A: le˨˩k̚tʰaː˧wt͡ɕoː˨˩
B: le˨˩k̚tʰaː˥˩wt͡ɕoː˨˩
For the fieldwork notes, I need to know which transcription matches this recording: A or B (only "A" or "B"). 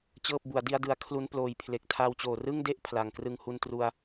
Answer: A